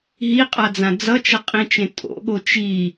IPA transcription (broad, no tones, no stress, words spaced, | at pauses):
ɦiqʼad͡zã d͡zʌt͡ʃʌqʼĩt͡ʃẽ tʼo̰ɠo t͡ʃi